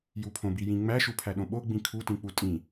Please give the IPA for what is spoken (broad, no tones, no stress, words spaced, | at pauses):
jupʰõ bijĩ ŋ͡mæ ʃupʰæɗõɓo ɡ͡bĩkʰu tĩk͡putʼĩ